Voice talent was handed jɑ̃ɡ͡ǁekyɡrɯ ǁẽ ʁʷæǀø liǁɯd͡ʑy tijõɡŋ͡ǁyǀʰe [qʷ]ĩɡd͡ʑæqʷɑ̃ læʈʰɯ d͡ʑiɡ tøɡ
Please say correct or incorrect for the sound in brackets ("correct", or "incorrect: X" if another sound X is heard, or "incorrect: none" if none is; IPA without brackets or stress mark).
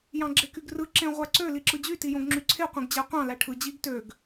correct